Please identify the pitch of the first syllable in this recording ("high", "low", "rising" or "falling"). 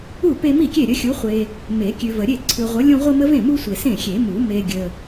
falling